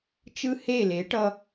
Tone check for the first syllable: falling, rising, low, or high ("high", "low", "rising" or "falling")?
high